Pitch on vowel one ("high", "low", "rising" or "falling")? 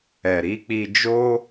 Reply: low